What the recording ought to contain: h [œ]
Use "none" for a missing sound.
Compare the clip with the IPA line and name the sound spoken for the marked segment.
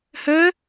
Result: œ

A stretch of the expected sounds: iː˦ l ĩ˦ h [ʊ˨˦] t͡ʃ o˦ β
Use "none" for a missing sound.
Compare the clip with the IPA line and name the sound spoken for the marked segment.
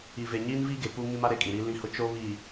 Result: ʊ˦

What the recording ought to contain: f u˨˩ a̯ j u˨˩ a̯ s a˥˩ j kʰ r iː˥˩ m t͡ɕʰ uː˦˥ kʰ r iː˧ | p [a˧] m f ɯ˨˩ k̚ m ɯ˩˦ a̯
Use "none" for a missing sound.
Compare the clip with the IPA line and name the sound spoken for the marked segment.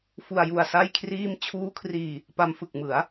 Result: a˧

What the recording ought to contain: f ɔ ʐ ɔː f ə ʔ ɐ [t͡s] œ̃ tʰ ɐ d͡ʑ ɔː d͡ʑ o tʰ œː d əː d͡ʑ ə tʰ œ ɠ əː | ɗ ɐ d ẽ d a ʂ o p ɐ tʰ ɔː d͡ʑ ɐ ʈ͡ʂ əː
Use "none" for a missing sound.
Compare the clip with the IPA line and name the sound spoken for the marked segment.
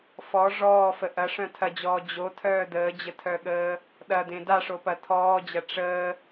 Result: ʂ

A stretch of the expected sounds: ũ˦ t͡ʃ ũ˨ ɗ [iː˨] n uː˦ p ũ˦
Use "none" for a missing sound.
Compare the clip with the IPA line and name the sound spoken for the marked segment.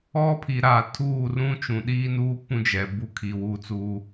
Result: iː˦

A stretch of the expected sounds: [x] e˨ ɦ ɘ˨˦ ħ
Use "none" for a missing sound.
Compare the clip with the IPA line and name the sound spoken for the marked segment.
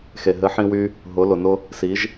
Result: x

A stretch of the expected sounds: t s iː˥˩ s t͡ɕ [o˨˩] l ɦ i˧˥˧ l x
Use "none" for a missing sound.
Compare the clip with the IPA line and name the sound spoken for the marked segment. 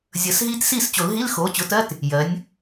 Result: o˨˩˦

